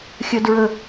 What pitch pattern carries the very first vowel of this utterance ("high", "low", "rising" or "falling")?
high